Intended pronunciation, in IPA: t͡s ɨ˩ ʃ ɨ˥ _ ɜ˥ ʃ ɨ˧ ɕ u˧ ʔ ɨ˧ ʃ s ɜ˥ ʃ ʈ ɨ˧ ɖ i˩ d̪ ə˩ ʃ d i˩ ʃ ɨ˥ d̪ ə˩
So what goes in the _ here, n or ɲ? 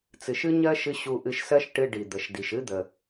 ɲ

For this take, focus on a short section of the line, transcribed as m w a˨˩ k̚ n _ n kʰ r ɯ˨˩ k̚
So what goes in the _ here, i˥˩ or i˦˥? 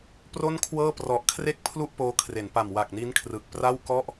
i˦˥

